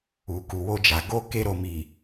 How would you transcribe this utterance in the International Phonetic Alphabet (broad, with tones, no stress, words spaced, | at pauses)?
u˨ku˨wo˧d͡ʒa˨ ɡo˧ ke˧ɾo˨mi˨